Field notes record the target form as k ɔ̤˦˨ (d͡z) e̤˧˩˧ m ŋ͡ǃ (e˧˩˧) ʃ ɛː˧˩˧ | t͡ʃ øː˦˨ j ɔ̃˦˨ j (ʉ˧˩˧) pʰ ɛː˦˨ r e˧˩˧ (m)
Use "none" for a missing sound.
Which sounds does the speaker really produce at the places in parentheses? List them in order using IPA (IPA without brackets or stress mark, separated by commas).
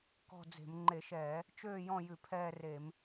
d͡z, e˧˩˧, ʉ˧˩˧, m